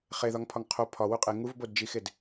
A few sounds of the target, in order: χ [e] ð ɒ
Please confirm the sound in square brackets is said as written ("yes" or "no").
yes